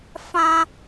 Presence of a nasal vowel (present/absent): present